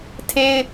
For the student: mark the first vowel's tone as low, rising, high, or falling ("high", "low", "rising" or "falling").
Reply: high